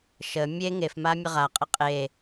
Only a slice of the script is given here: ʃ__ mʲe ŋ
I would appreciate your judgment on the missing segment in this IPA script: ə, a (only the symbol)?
ə